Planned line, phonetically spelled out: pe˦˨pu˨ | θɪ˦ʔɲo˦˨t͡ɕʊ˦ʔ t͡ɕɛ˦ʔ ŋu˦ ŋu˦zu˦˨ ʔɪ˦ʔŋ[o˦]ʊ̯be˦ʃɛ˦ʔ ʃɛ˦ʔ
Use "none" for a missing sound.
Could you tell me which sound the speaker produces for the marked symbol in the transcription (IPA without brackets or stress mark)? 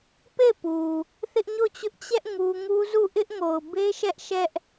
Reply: o˨